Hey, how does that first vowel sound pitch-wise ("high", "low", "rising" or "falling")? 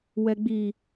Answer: low